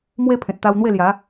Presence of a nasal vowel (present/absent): present